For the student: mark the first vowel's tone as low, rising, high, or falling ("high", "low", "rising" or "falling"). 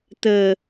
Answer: low